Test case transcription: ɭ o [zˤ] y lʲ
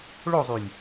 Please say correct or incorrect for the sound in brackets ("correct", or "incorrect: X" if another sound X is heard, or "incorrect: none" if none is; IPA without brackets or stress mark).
correct